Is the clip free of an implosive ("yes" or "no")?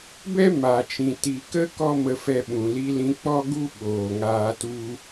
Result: no